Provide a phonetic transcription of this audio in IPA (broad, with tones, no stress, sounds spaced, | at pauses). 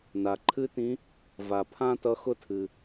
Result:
n a˩ ǃʰ ɨ˥ t ĩ˧˥ | v a˩ pʰ ã˥ t ʌ˧˥ x ʊ˥ tʰ ɨ˩